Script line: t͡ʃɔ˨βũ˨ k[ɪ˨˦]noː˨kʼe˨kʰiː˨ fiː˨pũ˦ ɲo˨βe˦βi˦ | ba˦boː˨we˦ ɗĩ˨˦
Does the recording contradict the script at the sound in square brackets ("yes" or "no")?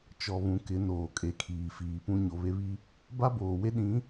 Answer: no